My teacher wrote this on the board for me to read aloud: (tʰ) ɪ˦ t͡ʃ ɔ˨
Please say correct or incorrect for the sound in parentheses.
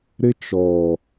incorrect